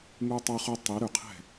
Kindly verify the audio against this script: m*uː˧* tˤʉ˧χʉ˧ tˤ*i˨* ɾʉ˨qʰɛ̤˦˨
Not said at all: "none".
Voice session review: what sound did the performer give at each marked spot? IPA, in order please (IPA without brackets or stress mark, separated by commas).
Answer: u˧, i˨˦